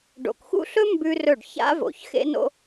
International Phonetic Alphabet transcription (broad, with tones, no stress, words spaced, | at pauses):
ɖo̰˨kxṵ˥ɬɵ˥ mbʉ˥rɵ˥˩ɖ ça̰˥vo̰˨ç xḛ˥no̰˥